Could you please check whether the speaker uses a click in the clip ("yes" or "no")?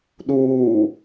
no